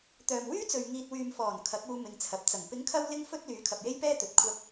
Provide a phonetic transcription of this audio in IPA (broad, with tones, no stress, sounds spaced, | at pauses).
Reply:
t̪ œː˨ m w yː˥ t͡s ɵ˨ ɥ ŋ iː˨ t̚ w yː˨ m f ɔː˨˩ n kʰ ɐ˨˥ k̚ uː˧ m ɪ˨˧ ŋ t͡sʰ ɐ˨ p̚ t͡s ɐ˨˩ ŋ p ɪ˨˥ ŋ kʰ ɐ˧ w l ɪ˧ ŋ f ɵ˧ t̚ l yː˨˥ kʰ ɐ˨ p̚ j e˥ j p ɛː˥ t̪ ɵ˨˥ t̚ kʷʰ ɐ˥ k̚